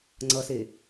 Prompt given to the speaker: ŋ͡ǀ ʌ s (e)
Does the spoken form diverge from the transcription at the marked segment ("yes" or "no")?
no